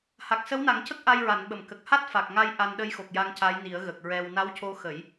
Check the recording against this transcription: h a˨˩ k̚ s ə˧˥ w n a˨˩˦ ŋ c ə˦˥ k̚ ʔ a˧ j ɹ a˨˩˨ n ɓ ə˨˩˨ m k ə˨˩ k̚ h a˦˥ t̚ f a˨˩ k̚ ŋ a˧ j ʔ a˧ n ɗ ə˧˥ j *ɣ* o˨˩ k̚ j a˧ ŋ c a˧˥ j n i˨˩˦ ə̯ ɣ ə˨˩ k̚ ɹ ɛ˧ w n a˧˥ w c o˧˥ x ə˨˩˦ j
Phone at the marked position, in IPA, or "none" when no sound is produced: x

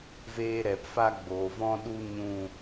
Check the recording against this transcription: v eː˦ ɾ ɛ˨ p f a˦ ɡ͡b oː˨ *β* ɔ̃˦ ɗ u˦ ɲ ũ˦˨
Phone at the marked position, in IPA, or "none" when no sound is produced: v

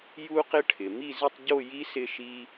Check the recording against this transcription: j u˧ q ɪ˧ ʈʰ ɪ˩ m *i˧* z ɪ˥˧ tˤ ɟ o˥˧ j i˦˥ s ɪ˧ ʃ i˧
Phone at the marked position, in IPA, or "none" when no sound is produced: i˥˧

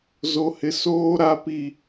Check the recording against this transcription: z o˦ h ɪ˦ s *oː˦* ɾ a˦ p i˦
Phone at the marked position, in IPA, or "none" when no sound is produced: oː˦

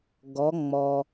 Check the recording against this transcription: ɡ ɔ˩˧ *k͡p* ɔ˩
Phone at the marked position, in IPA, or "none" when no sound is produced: ŋ͡m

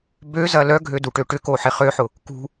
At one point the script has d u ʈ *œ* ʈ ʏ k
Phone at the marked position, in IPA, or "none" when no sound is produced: ø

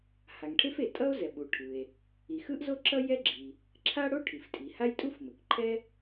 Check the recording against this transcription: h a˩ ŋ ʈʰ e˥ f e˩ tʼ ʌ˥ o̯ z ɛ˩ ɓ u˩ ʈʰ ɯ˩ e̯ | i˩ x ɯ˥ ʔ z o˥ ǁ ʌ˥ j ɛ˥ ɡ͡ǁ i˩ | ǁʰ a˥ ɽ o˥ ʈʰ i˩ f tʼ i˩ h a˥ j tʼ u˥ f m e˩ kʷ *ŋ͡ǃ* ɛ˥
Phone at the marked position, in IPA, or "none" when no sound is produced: ǃʰ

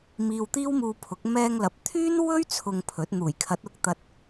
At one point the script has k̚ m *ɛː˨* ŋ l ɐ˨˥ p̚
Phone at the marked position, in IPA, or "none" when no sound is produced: ɛː˧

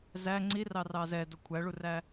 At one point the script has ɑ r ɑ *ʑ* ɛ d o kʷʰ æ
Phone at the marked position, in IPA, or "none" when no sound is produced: z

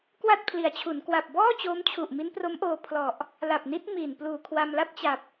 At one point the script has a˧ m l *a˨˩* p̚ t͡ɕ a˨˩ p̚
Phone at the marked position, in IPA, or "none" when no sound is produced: a˥˩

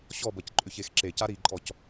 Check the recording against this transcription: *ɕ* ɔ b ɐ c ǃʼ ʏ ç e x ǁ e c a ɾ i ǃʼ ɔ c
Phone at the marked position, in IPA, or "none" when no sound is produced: ɕ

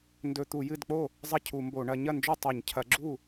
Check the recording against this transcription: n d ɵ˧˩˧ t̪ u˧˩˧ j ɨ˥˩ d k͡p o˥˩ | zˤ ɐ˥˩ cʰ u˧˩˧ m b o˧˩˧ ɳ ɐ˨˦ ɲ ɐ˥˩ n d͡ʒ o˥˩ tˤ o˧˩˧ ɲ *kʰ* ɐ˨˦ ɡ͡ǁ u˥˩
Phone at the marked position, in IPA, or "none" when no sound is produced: cʰ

